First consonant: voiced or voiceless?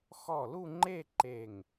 voiceless